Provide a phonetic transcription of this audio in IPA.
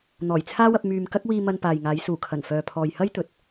n̪ɔː˨˩jt͡sʰaː˥wɐ˧p̚ myː˨m kɐ˥k̚wiː˧ mɐ˧npaː˨jŋaː˨˧j suː˨˩kʰɐ˨˩nfœː˨pʰɔː˨j hɐ˥jt̪ɵ˨t̚

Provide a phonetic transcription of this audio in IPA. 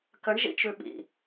kəɳʒḭt͡ʃʉ ɓḭ

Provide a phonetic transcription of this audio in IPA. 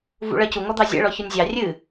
vṵɭɜcu ŋɔd̪ɑzʲɛ̰ ɭɔçɔnʲzʲɑ rʲɨ

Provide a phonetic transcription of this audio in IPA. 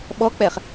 ɓɔk͡pɛχ

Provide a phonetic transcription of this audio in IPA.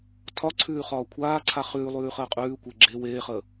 tʰɒǀʰʉː χɒːkʷʰaːǀʰa χʉːlˠʉː χəːqʼʉːkʷe ɡ͡ǁe weːχəː

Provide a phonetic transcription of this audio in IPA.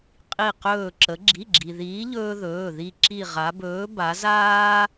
qʼi˧˩qɵː˧˩ ǁə˩˧ɡ͡ǁi˩˧˩ɡ͡ǁi˩ ðiː˨˥ʎɵː˦ðɵː˩˧˩ ði˧˩ ǁi˧˩ʁa˩˧bɵː˨˥ ba˩˧zaː˦

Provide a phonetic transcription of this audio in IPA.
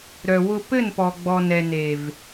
ɾœ˨wʊ˧pɘ˦˨npɔ˨ ɡ͡bɔ˨nɛ˨ne˨v

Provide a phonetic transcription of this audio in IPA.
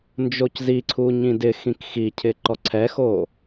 nd͡ʒocziǀʰu ɲĩdɪxĩk xicʰɪǃɔ ǀʰɛxo

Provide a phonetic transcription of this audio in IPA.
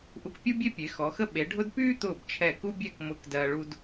ʔu˧kpʲu˥bʲe˥ pʲe˩˧xɔ˩˧xə˥ ɓe˩˧ɖʱʊ˥d pyː˥t̪ʊː˧˩b t͡ʃʰɛ˧˩ku˥bʲɛ˥˧k mʊ˧˩k dɜː˧ɭu˥d

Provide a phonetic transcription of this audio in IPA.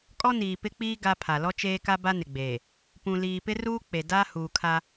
kʼɔ˦niː˨pɪ˦k͡piː˦ ɡa˦pʰa˨ lɔ˦t͡ʃeː˦ka˦ ba˦nɪ˨ɡ͡beː˨ | pũ˨ liː˨pɪ˦ruː˦ k͡pe˨ da˦ huː˨kʰa˦

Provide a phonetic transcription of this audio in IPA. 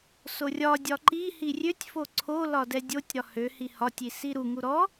sorʲɒdʲɒ ǃi hirʲøtʲfo ǀʰolɒ dɛdʲotʲɾɒ høhi hɒtʲi siɾuŋu ɾɔ

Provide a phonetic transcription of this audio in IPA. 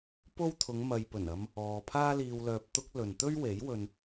po˥w t̪ʰʊ˨˧ŋmɐ˨j pɵ˨˩nɐ˧m | ɔː˨pʰaː˥ liː˧wlœː˧p̚t̪ʊ˥k̚ lɵ˨n t̪ɵ˥ɥwe˨˥j wɵ˧n

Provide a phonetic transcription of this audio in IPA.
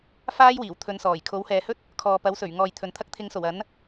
faː˥jwiː˨˩w t̪ʰɵ˨˧nsɔː˨˩j kʰo˨˥whɛː˨hɵ˥t̚ | kʰɔː˨pɐ˨˥wsɵ˨˩ɥŋɔː˨j t̪ʰɵ˨n t̪ʰɐ˧k̚t̪ʰɪ˨˧ŋso˨˩w ɐ˨˥n

